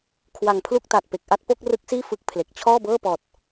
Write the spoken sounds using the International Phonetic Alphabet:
kʰwa˨˩ŋpʰlu˥˩k̚ta˨˩t̚ pe˨˩k̚ʔa˥˩t̚ po˥˩k̚rɯ˦˥k̚siː˥˩ fɯ˦˥k̚ pʰle˨˩k̚ t͡ɕʰɔː˥˩bɤː˥˩pɔː˨˩t̚

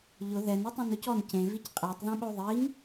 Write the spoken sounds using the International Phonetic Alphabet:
ʎʊ ðɛno tˤẽnʊcɔn cẽvic qʼɛtˤðẽɓo ðˤiŋ

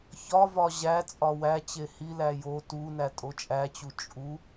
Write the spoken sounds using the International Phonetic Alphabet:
çɒvɒ ʑæ t͡sʼɒwæt͡ɕe hilæ jo tu nætʼot͡ʃʼæt͡ɕu t͡ʃʼu

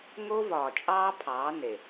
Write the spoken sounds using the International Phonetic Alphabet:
ŋo˦vɒː˨ t͡ʃʼɑː˦pʰɑː˨˦ ne˨

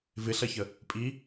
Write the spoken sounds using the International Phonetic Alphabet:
vɪɬɐçə | pʼi

